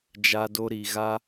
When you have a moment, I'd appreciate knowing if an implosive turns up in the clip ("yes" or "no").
no